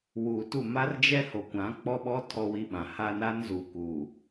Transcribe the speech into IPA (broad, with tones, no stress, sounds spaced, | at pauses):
w uː˨ t u˦˨ m a˦ r d͡ʒ ɛ˦ h o˨ kʷ ã˨˦ k͡p ɔ˦ ɓ ɔ˦ tʰ ɔ˦ w i˦ ɓ ã˨ h a˦ n a˦ n z u˨ k u˨